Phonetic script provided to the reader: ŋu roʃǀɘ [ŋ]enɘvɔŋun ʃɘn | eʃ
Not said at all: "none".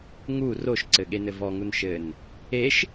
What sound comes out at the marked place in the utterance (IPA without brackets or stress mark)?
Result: ɠ